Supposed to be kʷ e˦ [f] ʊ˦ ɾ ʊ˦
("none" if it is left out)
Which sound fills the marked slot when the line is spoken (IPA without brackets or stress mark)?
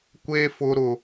f